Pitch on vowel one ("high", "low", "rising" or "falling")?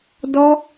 high